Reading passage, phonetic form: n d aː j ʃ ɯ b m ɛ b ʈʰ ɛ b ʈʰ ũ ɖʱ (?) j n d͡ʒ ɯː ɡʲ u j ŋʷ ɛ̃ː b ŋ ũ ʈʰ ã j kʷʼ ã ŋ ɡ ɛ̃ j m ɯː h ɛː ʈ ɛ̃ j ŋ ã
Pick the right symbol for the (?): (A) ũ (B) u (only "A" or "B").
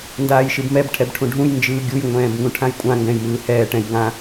A